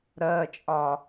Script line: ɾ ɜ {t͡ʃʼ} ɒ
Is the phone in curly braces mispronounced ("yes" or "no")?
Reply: no